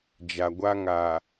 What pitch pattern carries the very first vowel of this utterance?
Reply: low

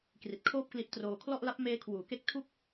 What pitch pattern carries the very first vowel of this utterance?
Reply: low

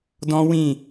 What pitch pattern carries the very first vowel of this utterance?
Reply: high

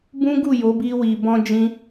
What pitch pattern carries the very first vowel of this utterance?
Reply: high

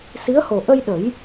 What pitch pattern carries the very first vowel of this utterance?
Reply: rising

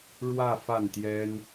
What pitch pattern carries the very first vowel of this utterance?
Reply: falling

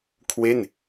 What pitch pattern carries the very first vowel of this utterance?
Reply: falling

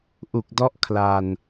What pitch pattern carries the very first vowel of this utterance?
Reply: low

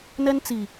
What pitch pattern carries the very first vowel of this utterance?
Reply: high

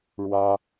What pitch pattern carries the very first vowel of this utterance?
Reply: high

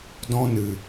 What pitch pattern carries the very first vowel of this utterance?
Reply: high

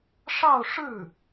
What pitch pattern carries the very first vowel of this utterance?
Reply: falling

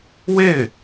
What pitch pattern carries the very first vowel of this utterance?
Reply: falling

